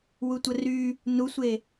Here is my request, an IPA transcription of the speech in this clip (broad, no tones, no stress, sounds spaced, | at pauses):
w u tʷ ə r y | n u sʷ e